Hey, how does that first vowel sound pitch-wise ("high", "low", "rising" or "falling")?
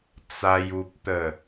high